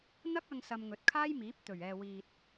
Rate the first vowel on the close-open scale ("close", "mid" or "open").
open